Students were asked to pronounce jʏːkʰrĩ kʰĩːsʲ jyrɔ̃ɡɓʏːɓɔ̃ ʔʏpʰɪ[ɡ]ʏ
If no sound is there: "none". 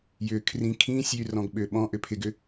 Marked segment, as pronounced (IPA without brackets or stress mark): ɡ